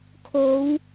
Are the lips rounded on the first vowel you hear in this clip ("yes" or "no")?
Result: yes